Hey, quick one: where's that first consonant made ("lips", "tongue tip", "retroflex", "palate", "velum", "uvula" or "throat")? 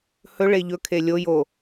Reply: throat